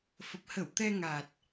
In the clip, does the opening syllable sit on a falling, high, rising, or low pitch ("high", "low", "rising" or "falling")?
low